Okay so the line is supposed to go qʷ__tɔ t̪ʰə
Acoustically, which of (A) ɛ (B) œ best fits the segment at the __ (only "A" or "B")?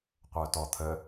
B